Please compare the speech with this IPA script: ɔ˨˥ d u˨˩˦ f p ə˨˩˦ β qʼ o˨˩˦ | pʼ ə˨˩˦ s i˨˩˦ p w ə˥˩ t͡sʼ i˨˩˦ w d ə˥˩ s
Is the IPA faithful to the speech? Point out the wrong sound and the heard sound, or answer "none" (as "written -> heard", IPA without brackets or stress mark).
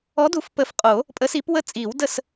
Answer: β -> f